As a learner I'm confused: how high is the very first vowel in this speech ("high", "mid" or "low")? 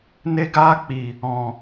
mid